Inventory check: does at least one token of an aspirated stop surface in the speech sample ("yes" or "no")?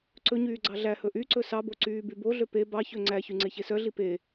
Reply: no